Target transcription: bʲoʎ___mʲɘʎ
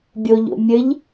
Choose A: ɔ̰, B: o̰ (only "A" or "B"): B